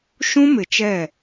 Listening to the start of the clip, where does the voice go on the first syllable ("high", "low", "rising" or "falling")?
high